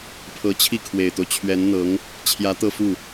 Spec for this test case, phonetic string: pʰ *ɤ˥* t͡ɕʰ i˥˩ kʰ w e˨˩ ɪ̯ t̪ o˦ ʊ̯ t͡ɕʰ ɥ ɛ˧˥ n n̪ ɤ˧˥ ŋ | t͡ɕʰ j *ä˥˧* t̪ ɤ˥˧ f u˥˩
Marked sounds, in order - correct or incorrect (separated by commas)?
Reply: incorrect, incorrect